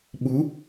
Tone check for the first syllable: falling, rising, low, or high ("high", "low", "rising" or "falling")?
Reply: rising